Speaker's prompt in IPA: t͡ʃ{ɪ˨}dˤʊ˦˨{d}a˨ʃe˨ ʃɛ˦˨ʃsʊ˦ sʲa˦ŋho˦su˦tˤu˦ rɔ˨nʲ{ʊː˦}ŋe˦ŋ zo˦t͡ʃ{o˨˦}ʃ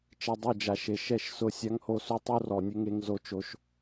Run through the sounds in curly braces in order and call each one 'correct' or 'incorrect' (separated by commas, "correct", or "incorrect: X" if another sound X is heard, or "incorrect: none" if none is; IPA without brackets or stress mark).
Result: incorrect: ɛ˨, incorrect: d͡ʒ, incorrect: ʊ˦, incorrect: o˦